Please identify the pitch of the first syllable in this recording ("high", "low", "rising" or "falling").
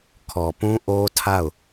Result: low